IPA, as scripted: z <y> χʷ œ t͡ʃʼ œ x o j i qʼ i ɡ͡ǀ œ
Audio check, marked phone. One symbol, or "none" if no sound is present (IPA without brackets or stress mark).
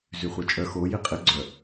y